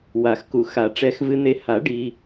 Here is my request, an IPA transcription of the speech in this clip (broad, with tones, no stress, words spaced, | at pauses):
wa˨˩˦xku˨xa˨˩˦ ʈ͡ʂɛ˨xvɨ˨n̪e˨ ha˨˩˦ ɖi˨